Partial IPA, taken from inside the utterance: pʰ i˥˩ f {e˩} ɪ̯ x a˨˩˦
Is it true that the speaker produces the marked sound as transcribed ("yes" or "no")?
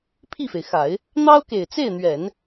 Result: yes